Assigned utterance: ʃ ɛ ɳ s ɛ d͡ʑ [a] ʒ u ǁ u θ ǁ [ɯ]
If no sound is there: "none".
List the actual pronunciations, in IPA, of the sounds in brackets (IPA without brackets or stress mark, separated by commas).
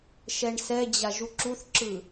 a, ɯ